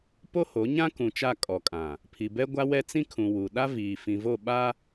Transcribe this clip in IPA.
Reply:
p o˦ h o˨˦ ɲ ã˦ k ũ˨ t͡ʃ a˦˨ kʼ ɔ˨ kʼ ã˨ | pʰ i˨ b ɛ˦ ɡʷ a˦ w ɛ˦ t͡s ĩ˦ kʰ ũ˨ w u˨ ɗ a˦ v iː˨ f ĩ˨ v o˦˨ ɓ a˦

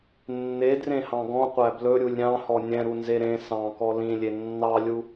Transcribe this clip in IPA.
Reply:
nː e d r ẽ h ɑ̃ ɡ ɔ̃ qʷ æ b l ɵ ɾʲ u lʲ ɾʲ ɑ̃ h ɔ nʲ ɛ̃ ɾ u n z e ɾ ẽ s ɑ̃ k ɔ l ĩ lʲ e nː ɑ lʲ u

